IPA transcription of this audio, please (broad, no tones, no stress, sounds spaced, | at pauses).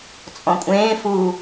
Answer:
t͡sʼ ɔ̃ kʷʼ ẽː f u